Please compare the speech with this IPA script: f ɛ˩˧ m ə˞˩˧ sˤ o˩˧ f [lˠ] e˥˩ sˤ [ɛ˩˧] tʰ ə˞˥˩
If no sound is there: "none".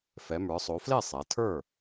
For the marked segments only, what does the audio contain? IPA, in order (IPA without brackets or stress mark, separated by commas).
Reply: l, ɛ˩˧